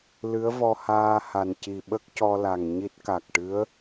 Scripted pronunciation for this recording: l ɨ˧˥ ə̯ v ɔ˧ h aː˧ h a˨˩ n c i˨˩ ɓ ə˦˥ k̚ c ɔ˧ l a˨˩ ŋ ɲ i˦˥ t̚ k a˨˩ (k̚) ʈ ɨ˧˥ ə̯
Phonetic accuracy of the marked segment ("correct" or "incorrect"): correct